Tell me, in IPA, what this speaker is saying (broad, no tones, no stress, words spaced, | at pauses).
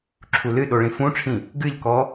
ǁʰulɨɗo ɭĩfũʈ͡ʂʰĩ | ɡɨʎkɔ